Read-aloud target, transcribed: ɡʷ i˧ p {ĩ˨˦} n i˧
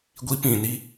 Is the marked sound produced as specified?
no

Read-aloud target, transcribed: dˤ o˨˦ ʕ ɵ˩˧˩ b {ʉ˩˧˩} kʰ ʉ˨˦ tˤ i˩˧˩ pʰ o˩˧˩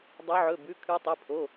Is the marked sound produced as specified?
yes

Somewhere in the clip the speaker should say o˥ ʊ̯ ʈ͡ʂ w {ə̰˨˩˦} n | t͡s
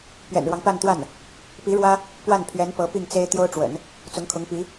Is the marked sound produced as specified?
yes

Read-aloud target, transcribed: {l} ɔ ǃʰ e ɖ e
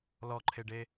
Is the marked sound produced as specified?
yes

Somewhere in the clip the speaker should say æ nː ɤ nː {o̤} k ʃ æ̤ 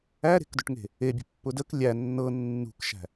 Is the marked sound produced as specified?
no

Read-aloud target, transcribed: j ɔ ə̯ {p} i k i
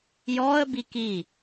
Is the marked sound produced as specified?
no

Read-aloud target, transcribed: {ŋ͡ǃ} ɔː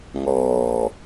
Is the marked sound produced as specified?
no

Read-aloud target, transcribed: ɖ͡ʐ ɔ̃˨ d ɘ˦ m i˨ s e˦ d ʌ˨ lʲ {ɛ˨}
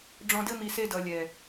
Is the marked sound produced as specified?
yes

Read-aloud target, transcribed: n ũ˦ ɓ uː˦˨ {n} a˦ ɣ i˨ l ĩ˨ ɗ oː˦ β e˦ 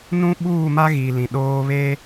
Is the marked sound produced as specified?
no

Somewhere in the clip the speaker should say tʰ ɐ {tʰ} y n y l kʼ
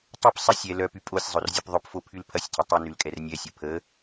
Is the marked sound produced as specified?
no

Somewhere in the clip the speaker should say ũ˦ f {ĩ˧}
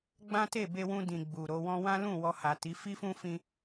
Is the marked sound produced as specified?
yes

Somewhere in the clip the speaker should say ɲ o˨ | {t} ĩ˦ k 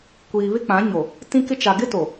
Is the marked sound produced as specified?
yes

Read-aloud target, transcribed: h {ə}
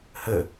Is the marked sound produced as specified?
yes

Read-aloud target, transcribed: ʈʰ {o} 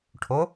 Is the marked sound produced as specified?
yes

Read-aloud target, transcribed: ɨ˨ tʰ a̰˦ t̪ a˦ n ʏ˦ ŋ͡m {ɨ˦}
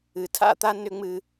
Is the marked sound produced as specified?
yes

